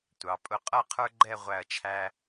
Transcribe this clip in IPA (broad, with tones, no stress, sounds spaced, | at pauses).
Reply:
tʷ ɑ˩˧ pʼ ʊ˧˩ qʼ ʌ˥˧ qʰ ə˞˥ ɡ͡ǃ ɛ˥˧ ʁʷ æ˧˩ ɐ̯ t͡ʃʰ æ˧